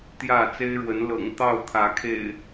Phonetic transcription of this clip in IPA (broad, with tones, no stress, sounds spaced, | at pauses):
t̪ j ä˥˨ t͡s e˦ ɪ̯ ɻ w ə˨˦ n l ɤ̰˨˩ ŋ t̪ ɑ˥˨ ʊ̯ t̪ʰ ä˨˦ kʰ ḛ˨˩ ɪ̯